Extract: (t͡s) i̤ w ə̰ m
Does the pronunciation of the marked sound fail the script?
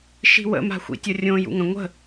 yes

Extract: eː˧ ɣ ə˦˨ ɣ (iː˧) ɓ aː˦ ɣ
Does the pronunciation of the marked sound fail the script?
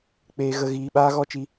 no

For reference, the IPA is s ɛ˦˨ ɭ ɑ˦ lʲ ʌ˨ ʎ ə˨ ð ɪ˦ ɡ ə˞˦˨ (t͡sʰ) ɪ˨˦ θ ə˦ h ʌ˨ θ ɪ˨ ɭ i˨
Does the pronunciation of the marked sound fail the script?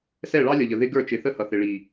yes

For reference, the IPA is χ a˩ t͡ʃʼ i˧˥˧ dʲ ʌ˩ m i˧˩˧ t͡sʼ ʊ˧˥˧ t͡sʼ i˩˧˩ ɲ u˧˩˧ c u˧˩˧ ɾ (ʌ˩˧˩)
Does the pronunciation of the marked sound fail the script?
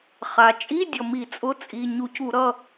no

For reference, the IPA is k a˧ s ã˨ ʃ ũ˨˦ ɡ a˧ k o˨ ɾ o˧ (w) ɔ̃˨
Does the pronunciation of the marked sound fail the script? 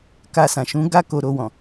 no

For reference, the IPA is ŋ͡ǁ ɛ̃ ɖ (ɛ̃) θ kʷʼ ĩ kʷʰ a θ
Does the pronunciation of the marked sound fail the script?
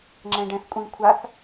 no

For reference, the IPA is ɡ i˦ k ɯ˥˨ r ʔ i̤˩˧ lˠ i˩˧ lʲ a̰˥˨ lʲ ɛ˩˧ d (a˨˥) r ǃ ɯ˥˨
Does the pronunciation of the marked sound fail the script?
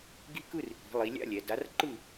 no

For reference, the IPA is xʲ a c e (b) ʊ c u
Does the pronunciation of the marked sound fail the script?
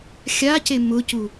yes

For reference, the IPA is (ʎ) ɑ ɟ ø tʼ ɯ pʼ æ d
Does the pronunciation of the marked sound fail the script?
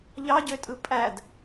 no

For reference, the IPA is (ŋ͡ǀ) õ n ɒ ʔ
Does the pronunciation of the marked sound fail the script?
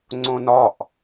no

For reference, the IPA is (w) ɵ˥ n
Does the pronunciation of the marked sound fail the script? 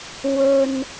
no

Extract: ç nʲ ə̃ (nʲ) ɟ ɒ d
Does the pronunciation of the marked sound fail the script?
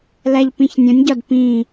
no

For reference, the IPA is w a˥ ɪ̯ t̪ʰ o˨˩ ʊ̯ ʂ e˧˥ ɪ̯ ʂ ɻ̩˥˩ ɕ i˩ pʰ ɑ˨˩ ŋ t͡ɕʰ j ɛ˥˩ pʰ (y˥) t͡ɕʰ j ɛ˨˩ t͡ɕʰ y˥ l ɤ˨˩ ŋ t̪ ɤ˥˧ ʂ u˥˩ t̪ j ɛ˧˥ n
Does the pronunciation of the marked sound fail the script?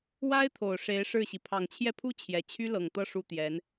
yes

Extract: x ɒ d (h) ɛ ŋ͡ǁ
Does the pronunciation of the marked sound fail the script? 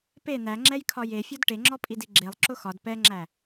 yes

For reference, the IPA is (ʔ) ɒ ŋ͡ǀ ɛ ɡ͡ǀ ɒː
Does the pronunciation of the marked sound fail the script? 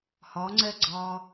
yes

